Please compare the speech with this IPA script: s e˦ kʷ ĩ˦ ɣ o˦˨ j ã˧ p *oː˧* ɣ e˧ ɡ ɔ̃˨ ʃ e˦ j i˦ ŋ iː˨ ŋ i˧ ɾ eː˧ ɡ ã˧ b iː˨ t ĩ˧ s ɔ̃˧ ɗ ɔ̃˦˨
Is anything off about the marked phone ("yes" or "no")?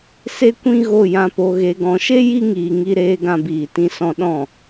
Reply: yes